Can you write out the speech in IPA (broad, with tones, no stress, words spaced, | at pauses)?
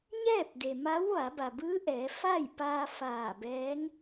ɲɛː˥˨p̚de˩ma˧˥w ʋa˩˧ba˩bɯː˧˥ ʔɛː˩˧fa˥˨jpaː˧ faː˧˩bɛː˧˥ŋ